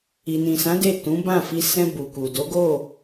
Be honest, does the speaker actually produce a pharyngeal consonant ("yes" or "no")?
no